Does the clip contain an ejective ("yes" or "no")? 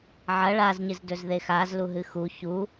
no